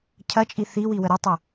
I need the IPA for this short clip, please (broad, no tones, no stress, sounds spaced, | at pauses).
cʰ ɐ t͡ʃʼ i θ i w i w ə ɾ ə tˤ o